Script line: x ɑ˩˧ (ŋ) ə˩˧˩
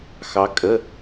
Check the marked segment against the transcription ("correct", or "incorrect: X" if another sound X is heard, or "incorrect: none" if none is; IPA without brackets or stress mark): incorrect: kʼ